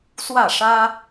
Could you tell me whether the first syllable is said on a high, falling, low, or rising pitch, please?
falling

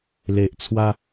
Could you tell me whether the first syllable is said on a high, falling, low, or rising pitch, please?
low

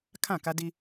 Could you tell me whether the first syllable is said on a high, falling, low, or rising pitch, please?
falling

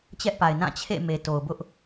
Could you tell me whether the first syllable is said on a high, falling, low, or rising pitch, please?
high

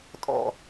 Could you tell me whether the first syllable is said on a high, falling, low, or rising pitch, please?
low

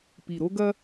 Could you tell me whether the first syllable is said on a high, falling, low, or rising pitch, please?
low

